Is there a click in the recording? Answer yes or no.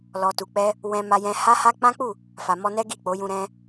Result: no